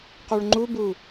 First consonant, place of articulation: uvular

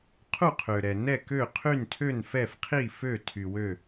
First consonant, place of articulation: uvular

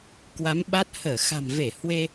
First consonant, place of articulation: velar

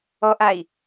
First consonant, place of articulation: glottal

